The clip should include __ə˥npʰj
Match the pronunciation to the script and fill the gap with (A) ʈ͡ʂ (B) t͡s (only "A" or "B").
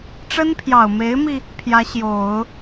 A